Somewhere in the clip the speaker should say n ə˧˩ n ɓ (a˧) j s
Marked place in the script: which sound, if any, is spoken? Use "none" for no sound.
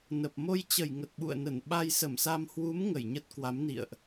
a˧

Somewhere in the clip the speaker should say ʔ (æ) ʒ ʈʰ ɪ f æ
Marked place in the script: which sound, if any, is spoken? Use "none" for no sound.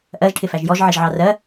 ɜ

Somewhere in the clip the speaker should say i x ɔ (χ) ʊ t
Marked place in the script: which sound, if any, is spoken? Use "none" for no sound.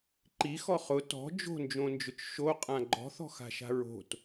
χ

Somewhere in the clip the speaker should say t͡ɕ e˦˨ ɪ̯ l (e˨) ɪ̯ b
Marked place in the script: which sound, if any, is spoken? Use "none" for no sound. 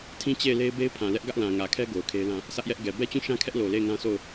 e˦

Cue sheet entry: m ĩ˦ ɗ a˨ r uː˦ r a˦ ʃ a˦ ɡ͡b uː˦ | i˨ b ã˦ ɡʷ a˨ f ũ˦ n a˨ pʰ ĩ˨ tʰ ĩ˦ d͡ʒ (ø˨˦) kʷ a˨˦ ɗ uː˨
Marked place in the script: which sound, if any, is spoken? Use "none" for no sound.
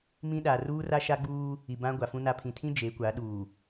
e˨˦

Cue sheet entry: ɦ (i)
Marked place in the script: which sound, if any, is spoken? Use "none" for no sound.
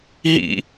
ḭ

